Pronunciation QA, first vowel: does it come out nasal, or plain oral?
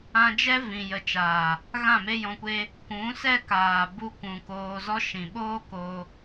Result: nasal